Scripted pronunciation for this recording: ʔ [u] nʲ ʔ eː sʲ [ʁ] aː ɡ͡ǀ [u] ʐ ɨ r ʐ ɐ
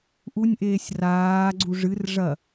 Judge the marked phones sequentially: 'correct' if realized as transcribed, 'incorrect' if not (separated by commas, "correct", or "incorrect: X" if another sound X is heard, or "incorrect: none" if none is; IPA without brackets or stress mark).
correct, incorrect: r, correct